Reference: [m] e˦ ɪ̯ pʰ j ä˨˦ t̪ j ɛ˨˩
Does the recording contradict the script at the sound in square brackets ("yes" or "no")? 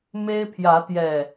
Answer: no